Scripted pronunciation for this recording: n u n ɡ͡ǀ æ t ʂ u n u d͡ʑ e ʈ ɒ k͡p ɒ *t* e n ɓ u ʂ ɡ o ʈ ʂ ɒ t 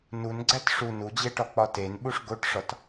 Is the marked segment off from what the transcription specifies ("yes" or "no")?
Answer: no